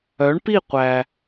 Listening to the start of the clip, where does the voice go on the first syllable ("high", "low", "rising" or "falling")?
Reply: rising